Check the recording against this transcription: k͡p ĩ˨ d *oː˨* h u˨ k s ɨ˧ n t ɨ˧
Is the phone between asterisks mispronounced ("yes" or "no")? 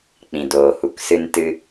no